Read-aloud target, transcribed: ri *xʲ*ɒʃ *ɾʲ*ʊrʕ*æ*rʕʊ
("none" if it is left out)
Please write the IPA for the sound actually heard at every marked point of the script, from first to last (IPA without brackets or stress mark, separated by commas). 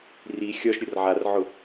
xʲ, ɾʲ, a